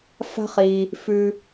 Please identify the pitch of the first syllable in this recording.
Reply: high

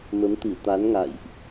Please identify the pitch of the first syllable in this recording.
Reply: rising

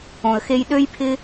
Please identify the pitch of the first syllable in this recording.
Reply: low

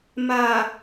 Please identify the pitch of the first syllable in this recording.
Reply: low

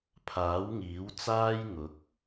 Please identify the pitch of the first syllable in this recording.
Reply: rising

